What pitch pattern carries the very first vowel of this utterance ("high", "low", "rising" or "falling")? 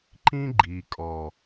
high